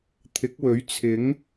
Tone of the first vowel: rising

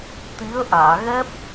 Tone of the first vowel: rising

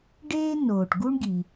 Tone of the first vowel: high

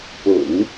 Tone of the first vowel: low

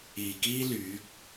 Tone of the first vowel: low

